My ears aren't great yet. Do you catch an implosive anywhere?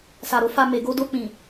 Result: no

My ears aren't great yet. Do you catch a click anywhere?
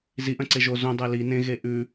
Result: yes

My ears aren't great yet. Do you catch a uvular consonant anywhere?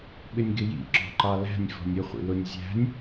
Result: yes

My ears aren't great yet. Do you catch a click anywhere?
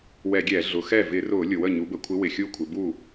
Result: no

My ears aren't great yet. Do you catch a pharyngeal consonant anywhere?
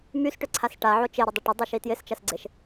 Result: yes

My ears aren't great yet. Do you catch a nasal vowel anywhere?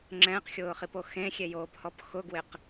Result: yes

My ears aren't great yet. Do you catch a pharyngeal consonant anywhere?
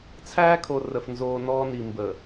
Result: no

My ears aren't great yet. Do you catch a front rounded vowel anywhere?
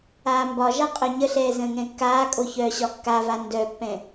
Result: yes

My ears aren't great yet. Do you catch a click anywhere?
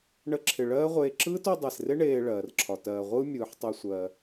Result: yes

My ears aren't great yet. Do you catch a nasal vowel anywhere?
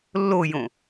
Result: yes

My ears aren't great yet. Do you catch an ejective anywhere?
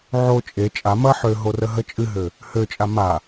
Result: yes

